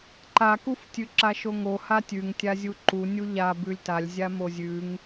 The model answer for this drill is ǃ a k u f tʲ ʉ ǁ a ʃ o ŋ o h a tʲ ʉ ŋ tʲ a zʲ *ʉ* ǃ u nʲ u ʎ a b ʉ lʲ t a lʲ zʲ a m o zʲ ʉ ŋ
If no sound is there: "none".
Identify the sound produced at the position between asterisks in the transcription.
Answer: u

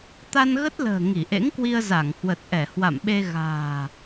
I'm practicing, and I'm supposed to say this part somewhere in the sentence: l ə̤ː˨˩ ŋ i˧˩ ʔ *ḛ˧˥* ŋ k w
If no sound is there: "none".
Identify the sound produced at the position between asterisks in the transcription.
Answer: ḛ˧˥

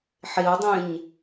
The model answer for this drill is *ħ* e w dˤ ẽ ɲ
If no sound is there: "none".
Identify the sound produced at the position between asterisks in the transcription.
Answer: ħ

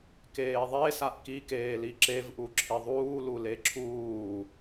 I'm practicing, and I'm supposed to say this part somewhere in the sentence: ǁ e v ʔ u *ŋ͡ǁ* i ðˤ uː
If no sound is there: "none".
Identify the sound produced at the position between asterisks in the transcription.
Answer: ǁʰ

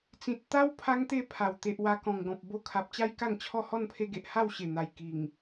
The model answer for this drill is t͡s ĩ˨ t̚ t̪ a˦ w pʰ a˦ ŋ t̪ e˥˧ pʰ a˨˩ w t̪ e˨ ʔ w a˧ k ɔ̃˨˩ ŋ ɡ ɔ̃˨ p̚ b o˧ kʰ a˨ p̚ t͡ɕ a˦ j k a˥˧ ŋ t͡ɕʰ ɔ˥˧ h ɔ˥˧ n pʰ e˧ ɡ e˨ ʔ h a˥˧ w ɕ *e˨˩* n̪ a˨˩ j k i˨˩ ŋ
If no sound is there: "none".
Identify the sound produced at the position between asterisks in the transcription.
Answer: e˨˩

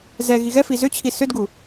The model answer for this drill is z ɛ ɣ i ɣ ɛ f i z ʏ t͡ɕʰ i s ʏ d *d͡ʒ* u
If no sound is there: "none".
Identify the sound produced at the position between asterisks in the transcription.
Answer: ɡ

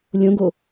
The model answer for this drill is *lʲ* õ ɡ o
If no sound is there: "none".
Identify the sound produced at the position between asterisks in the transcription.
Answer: lʲ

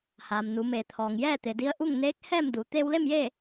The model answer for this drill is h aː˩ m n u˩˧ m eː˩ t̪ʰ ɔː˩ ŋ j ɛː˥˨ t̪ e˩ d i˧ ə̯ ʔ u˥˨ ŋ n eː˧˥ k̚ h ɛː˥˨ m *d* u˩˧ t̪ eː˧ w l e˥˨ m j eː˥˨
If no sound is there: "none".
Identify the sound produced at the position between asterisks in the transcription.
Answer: d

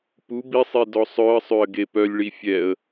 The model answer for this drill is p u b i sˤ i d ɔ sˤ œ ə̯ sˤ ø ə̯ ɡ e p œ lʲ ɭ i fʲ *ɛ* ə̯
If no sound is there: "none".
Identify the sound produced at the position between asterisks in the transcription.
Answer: ɛ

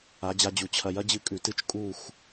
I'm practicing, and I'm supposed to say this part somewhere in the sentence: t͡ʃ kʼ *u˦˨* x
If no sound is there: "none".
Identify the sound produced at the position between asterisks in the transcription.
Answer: u˦˨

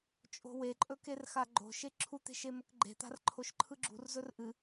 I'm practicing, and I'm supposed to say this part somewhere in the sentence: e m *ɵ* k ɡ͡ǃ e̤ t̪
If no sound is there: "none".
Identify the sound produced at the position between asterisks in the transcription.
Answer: ɵ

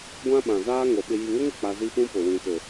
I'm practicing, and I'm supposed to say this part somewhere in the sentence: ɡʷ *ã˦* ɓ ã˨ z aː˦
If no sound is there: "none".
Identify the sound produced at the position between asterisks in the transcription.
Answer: ã˦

